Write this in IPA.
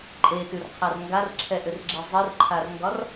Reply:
ǃʼetʉrqʰar ŋɡarǁʰɛʔʏrɡ͡ǁe zˤirǃʰarŋɡɒr

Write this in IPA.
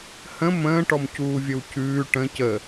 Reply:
hə̃ mə̃ːʈɔm cuːvʲəwcʉː ʈə̃ cə

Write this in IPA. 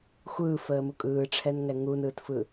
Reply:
xʷɯːfəːmu kʼɯːʈ͡ʂʰɛnŋɛ ŋunɯːtfɯ

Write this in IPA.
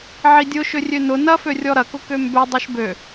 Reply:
ʕidʲʊ ʃʏrʲønʊ nɐfø rʲɔɾɐkʊ kømbø dˤɛʃbø

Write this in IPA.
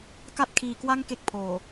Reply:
ka˥˩t̚kʰiː˧kwa˥˩ŋ ke˥˩k̚pʰoː˨˩

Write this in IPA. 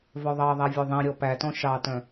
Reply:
vœðˤɑðˤæ vʲøðˤĩɾʲɔ pætɔ̃ ʃɑtœ̃

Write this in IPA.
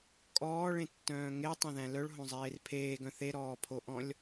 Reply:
kʼɔːɭẽtːœ̃ː ŋetˤẽðæ̃ lœɭɦõzˤeːr pʰeːɡœ̃ θeɾɔːpʰoʔɔ̃lʲ

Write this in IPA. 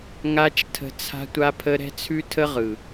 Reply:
ŋa˦t͡ʃtʰə̤˧ t͡sʰa̤˦tʷa˦pʰə˦ ɾɛ̤˦t͡sʰʉ˦tʰə˦ʁɯ˨

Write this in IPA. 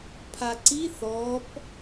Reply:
pʰaǀi θɔp

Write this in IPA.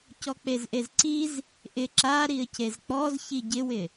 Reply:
cɔk͡pezʔezǀiz | ʔɪ ǁa ɾiə̯cezk͡pɔz çiɟɪwɪ

